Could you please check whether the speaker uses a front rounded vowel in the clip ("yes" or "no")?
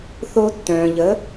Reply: yes